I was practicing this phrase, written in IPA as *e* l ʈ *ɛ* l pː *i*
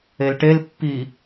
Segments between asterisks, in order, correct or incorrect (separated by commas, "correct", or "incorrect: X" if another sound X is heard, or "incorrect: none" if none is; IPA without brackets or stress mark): correct, incorrect: e, correct